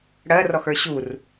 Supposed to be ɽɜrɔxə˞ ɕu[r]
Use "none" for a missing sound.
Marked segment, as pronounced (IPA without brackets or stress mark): r